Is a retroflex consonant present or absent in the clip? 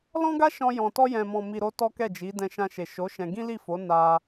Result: absent